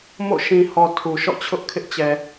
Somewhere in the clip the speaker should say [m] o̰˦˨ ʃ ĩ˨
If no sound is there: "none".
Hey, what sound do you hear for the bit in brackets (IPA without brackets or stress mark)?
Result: m